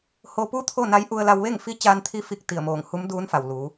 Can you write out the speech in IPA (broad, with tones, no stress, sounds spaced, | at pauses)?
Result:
h o˧ p u˥˨ t̪ʰ o˥˨ n a˧˥ j ʔ u˧ ə̯ l a˧ w ʋ e˥˨ ŋ f i˧˥ t͡ɕ aː˧ n t̪ʰ i˧ f i˧˩ k̚ t̪ i˧˩ ə̯ m oː˧˩ ŋ h u˧˥ m d uː˧˥ n f a˩ w l uː˩˧